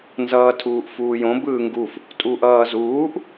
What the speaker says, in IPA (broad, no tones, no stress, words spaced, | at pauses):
nzʌːtʰuːʔfuːjõ bɯːŋɡuf | tʼuʔʌːzuːʔ